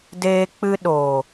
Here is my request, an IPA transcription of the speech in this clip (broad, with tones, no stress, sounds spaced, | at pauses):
d eː˧ k͡p ɨ˧ ɗ oː˨